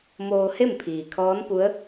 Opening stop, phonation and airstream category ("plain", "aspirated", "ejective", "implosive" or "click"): aspirated